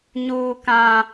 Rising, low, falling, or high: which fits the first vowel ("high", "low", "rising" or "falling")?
high